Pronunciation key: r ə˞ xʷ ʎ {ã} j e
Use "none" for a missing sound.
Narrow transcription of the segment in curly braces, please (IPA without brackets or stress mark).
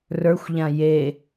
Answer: ã